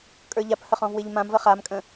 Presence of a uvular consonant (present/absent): present